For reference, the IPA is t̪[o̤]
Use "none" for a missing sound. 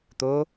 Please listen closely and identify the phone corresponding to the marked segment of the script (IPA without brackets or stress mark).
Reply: o